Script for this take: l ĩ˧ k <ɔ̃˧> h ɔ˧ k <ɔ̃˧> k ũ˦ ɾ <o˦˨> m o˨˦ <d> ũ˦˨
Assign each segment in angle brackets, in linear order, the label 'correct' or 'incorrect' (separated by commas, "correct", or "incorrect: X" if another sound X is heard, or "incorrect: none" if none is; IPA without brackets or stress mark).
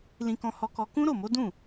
correct, incorrect: ɔ˧, correct, correct